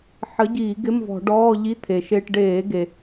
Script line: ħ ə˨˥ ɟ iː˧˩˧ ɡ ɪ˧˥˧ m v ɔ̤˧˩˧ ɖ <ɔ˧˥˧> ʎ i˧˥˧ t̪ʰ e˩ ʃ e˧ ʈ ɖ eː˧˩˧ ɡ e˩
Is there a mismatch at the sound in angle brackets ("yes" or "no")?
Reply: yes